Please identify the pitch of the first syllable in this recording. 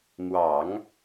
low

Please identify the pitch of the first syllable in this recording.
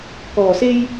low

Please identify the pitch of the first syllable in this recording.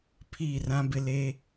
falling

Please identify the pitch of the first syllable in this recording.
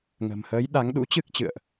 low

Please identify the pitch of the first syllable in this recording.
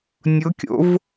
rising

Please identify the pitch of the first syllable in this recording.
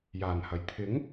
low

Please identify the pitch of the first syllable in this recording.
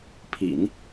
low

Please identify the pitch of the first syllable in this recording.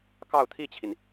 falling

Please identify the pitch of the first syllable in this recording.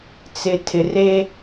low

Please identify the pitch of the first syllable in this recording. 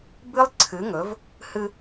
high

